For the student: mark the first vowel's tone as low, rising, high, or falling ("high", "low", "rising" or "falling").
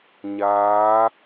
rising